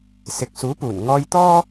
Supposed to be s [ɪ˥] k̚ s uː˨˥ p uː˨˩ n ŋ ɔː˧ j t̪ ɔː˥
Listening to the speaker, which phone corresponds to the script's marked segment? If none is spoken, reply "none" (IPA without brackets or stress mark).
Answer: ɪ˨